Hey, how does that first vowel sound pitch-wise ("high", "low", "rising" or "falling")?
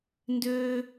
high